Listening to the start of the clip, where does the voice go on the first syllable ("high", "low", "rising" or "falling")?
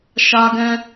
high